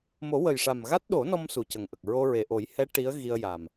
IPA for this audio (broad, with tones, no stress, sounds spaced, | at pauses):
m o˨˩˦ w ə˨˩ j ʂ a˨˩ m ɣ a˦˥ t̚ ɗ o˨˩˦ n ɔ˧ m s u˨˩ c ə˨˩ ŋ ʔ ə˨˩ k̚ ɹ o˧ ɹ e˨˩ ʔ o˨˩˦ j h ɛ˧˥ ʈ i˧˥ ə̯ ɣ i˧ ə̯ j a˨˩ m